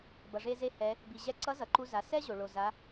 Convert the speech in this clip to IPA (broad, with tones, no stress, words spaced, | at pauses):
bʌ˩ʐe˧ze˧ hɛ˩˧ | bi˩ʑɛ˧ǀʌ˧˥ zʌ˩ǃu˧za˩˧ sɛ˥ ʑo˩ɭo˩za˩˧